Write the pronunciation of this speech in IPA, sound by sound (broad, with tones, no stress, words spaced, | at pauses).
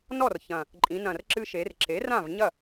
nɔ˥˩rçɐ̃˨˩ | ǃʼĩ˩˧nɐ̃˨˩r ǁɨ˧ʃe˩˧rǁe˩˥ rã˥˩vɲɐ˥˩